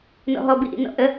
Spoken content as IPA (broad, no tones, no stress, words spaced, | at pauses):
nɔ̰ɦɔbiʔḭ nɔ̰ʔə